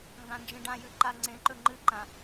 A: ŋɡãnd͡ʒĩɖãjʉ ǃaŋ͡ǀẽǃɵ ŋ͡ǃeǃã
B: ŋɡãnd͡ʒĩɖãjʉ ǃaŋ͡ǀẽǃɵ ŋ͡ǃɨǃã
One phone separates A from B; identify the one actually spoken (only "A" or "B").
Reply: B